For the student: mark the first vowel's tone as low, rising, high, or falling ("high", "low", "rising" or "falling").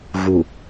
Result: low